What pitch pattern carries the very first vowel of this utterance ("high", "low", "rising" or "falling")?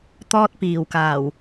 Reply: high